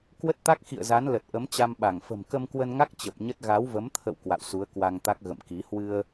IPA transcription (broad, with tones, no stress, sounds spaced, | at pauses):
k w ə˦˥ t̚ t̪ a˦˥ k̚ x ḭ˧˨ ə̯ z a˨˦ n l ə˨˩ t̚ ʔ ə˨˦ m t͡ɕ a˧ m ɓ a˧˩ ŋ f ə̤˨˩ m k ə˧ m k w ə˧ n ŋ a˦˥ k̚ t͡ɕ ə˨˩ p̚ ɲ ə˦˥ t̚ ɣ a˨˦ w v ə˨˦ m t̪ʰ ə̰˧˨ w k w a̰˧˨ w s u˨˦ ə̯ k w a˧ ŋ t̪ a˦˥ k̚ ɣ ə̰˧˨ m k i˨˦ h w ɨ˧ ə̯